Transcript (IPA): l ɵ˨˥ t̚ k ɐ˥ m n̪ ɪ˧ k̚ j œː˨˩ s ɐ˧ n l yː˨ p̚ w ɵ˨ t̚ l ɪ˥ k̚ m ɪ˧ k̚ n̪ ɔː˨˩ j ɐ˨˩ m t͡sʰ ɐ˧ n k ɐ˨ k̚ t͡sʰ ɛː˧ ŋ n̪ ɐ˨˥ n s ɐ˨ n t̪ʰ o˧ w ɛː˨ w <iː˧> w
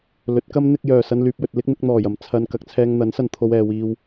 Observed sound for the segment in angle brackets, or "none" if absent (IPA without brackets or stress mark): iː˧